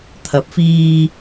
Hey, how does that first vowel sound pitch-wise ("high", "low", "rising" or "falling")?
rising